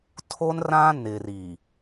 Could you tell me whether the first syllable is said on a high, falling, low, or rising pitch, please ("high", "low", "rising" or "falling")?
high